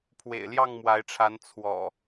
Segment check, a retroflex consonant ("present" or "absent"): present